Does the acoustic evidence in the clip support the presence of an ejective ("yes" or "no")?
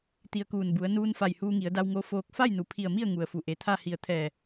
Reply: no